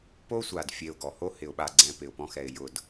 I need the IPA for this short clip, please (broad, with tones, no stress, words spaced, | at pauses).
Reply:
po˦sʷa˨d fʲe˧ʊ̯ɡɔ˨ho˦ hɪ˨ʊ̯ɓa˨ɡ͡ǀɛ̃˨ pɪ˨ʊ̯pɔ̃˧xɛ˨ɪ̯ jʊ˨d